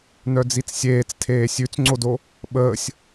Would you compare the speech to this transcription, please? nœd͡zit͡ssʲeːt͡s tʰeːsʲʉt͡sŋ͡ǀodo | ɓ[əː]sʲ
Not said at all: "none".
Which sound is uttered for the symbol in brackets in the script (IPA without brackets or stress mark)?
əː